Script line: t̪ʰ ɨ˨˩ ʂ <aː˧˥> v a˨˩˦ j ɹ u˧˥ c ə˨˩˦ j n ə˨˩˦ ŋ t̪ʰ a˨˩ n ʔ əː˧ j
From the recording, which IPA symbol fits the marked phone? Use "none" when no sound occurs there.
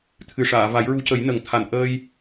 aː˨˩˨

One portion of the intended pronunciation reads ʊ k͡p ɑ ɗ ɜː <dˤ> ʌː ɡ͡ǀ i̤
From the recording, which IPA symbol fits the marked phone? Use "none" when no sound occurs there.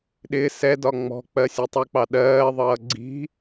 ðˤ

